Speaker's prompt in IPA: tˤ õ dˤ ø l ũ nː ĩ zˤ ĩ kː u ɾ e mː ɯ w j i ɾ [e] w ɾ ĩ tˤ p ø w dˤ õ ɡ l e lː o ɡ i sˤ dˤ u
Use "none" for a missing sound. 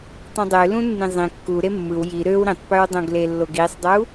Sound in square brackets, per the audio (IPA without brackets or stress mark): ø